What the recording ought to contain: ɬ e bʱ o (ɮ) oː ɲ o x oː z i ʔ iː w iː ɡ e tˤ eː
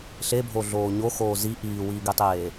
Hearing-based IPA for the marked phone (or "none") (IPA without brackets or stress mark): ɮ